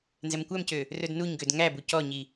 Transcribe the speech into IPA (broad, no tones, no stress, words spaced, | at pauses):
nzɛmkʷæmcø | rɵdnuɲɡød ŋæbu cɔɲi